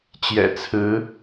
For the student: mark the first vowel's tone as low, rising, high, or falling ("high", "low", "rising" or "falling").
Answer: low